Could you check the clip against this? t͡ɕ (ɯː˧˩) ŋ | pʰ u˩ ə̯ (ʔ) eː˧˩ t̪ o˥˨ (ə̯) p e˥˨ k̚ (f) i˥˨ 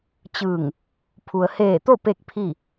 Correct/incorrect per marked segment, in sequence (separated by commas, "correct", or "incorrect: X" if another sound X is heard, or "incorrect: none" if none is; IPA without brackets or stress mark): correct, incorrect: h, incorrect: none, incorrect: pʰ